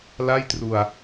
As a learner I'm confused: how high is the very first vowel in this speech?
low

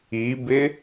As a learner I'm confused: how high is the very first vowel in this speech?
high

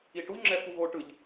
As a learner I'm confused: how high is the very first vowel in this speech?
high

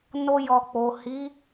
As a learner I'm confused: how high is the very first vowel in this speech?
mid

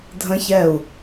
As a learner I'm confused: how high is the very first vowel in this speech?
mid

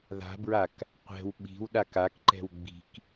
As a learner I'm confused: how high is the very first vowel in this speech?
low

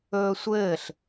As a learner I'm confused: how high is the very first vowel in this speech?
mid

